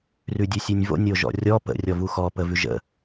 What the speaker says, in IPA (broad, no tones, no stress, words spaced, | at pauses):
rʉdʲʉsʲʉnʲvo̰ nʲoʒɔ̰rʲɔ pə̰ rʲɔvuxɔ pəvʉʒə̰